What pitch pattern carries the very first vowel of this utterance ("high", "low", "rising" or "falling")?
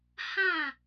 falling